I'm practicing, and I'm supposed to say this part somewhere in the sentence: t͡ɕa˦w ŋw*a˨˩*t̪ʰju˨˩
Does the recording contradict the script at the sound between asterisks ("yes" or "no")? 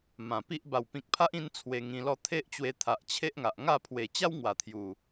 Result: no